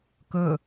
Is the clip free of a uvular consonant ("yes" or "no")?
yes